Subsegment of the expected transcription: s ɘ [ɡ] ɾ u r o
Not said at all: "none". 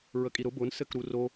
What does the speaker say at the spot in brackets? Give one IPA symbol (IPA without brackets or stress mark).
k